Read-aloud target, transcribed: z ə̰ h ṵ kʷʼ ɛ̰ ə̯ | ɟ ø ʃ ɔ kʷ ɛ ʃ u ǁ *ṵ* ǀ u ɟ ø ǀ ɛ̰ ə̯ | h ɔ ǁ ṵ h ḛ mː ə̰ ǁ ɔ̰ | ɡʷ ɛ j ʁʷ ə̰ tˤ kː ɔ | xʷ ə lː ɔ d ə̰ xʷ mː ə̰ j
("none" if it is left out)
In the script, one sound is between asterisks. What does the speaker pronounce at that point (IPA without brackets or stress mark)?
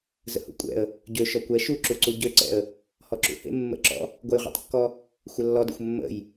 u